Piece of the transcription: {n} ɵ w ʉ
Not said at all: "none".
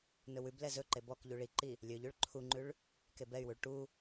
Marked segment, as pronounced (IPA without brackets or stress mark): n